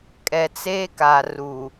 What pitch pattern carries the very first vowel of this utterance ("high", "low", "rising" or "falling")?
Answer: low